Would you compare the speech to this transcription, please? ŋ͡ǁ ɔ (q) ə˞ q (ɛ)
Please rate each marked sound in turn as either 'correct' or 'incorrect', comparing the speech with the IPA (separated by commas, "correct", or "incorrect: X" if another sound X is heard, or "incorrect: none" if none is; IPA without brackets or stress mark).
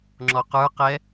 correct, correct